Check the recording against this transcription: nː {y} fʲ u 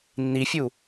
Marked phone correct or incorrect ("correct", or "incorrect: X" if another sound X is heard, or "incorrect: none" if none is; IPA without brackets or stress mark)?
incorrect: i